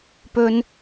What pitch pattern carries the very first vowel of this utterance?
high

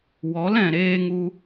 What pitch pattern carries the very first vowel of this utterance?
rising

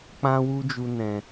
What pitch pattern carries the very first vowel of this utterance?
high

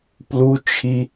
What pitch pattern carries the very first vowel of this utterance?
high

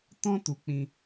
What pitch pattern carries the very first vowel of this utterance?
high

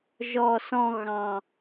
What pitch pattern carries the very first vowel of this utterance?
low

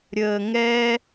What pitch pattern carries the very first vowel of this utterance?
low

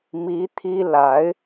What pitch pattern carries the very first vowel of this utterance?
rising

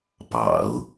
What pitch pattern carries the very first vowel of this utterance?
low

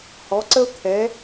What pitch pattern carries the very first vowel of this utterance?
rising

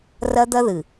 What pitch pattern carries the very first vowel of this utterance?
high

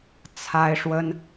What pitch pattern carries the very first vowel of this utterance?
high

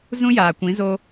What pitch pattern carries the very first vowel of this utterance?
high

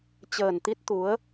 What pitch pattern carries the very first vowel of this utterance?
low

